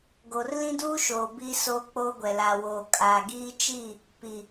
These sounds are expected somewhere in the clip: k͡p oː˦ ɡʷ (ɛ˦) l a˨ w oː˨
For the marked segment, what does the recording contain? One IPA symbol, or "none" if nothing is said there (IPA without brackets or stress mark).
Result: ɛ˨